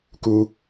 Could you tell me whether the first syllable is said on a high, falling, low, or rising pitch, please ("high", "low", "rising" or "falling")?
high